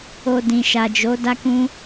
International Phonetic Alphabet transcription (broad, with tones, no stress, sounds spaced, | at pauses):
o˧ d ĩ˨ ʃ a˨ d͡ʒ o˨˦ d a˦ k ũ˦